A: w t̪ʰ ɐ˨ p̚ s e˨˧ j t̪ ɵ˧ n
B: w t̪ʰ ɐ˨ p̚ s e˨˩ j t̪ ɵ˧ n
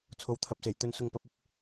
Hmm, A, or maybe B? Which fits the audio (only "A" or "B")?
B